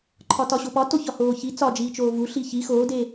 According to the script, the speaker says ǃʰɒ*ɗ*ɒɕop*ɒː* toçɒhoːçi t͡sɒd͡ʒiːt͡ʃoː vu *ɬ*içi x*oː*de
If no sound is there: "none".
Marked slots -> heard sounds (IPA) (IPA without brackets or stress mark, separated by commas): t, ɒ, ɬ, oː